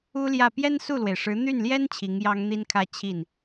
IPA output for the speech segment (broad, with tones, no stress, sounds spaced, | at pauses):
u˥ l j ä˥˩ p j ɛ˥ n s u˥˩ l w e˩ ɪ̯ ʂ ɻ̩˧˥ n̪ y˥˩ n l j ɛ˥ n t͡ɕʰ i˧˥ ŋ j ɑ˥ ŋ n̪ i˥ n kʰ ä˥˧ t͡ɕʰ i˥˩ n